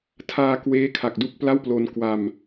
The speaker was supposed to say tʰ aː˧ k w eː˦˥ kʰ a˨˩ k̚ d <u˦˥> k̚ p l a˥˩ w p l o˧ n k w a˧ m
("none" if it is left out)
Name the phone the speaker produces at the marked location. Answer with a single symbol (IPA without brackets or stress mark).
u˦˥